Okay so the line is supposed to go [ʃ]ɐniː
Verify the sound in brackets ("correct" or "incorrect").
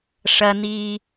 incorrect